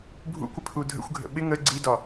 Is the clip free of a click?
no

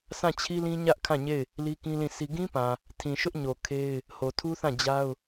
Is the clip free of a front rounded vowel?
yes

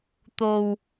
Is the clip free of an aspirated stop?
yes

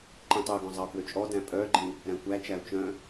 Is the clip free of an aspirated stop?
yes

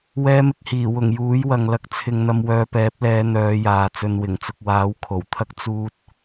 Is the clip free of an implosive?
yes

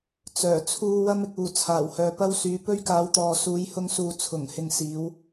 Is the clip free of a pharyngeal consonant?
yes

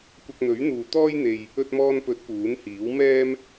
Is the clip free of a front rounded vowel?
yes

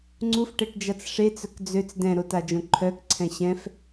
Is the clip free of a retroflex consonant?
no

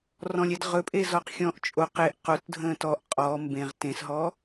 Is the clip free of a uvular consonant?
no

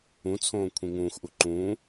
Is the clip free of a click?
no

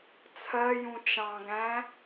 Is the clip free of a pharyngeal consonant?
yes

